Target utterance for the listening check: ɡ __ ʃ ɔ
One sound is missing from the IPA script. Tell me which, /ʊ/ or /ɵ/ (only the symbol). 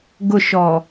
ʊ